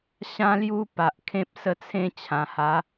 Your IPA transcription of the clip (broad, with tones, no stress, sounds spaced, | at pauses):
ɕ ã˦ l j u˦ p a˨ ʔ kʰ ẽ˦ p̚ s ə˥˧ t͡sʰ ẽ˦ t͡ɕʰ ã˨˩ h a˨˦